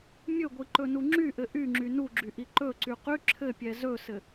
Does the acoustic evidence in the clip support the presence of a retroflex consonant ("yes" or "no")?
no